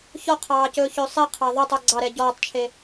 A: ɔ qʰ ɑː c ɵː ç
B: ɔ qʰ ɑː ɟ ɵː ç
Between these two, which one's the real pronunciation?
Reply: A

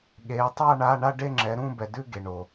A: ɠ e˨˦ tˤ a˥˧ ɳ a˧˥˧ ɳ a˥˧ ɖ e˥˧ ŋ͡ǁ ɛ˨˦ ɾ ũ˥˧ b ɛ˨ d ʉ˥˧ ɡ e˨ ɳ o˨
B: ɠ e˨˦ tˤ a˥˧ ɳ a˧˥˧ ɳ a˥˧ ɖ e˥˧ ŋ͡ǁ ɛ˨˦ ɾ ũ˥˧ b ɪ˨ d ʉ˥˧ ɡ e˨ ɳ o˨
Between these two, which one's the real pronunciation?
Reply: A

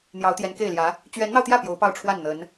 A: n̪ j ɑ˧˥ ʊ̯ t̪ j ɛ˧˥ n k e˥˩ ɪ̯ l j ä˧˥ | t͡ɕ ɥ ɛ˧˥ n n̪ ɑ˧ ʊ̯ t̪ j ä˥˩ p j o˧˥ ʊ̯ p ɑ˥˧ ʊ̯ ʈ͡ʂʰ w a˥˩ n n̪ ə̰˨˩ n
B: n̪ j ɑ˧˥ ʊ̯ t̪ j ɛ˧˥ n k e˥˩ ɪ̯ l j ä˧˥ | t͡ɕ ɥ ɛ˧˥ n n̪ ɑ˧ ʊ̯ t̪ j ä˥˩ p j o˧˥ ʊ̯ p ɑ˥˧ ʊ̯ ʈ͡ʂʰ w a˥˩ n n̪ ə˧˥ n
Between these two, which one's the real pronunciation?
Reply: B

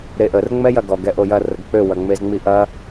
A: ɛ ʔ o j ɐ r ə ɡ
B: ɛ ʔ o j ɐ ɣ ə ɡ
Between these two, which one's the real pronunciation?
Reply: A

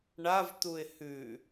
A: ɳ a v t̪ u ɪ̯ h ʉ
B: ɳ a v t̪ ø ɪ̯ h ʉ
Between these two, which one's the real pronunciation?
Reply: A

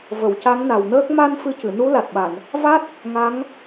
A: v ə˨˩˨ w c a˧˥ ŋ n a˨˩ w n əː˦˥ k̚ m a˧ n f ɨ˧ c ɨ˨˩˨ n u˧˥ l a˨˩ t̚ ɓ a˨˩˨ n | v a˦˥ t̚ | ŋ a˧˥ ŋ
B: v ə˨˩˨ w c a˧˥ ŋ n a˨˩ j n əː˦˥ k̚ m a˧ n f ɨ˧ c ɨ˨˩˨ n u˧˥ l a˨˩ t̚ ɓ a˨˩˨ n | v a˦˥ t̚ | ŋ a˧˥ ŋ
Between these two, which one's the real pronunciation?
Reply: A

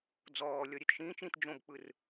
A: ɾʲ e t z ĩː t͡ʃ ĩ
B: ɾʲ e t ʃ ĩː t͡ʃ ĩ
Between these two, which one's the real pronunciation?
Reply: B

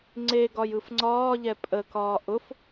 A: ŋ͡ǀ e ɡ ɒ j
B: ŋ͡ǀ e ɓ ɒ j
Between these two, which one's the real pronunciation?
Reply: A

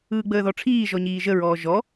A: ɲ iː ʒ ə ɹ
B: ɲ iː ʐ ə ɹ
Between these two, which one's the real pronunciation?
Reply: A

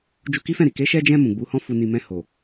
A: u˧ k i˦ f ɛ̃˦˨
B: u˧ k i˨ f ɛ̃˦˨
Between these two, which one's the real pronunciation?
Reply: A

